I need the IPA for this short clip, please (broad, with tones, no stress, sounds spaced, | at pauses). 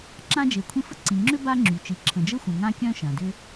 ǁ ã˥ d͡ʒ e˩ kʷʰ ə̃˥ f ə˥ ǀ ĩ˩ ŋ͡ǁ ʏ˥ b a˥ ŋ͡ǁ y˩ t͡ʃ i˩ ǁʰ ə̃˩ d͡ʒ ə˥ xʷ ə̃˩ ŋ ã˥ kʲ œ̃˥ ʃ ɐ̃˩ d ʏ˥